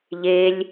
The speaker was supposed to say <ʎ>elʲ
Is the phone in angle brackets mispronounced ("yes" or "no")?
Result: no